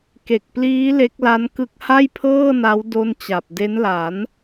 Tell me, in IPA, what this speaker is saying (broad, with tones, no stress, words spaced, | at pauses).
ke˨˩k̚pliː˦˥ le˦˥k̚la˦˥nkɯ˦˥k̚ ha˥˩jpʰɤː˥˩na˦˥w do˥˩nt͡ɕa˨˩p̚ de˦˥nla˩˦n